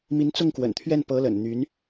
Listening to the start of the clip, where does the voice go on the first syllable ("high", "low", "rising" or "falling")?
rising